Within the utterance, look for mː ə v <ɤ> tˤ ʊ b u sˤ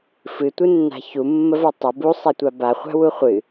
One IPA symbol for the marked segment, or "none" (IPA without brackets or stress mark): ɤ